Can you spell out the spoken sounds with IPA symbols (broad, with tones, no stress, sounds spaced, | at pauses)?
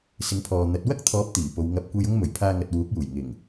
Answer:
s ɪ˨˥ ŋ pʰ ɔː˨ n̪ ɐ˨˥ t̚ w ɐ˥ k̚ t̪ʰ ɔː˨˥ p̚ t̪ iː˨˩ p o˨˧ w ŋ ɐ˧ p̚ kʷ e˧ j ʊ˥ ŋ m ɵ˨˩ ɥ pʰ aː˧ ŋ ɐ˨ t̚ w uː˨˥ k̚ j uː˨˩ j ŋ ɪ˨˩ ŋ